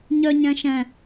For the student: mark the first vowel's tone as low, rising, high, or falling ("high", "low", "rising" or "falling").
high